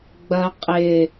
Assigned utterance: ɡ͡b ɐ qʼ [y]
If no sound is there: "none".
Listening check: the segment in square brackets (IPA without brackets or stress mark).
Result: ɪ